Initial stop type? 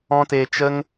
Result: plain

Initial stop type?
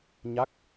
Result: plain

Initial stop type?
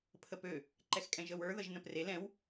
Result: aspirated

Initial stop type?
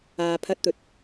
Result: aspirated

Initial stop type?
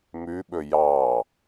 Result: implosive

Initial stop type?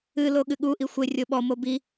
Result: implosive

